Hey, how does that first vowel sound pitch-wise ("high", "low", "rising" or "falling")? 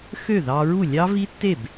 falling